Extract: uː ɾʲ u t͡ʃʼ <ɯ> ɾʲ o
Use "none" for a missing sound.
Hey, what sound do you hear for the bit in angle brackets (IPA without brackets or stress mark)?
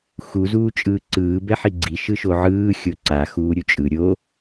ɯ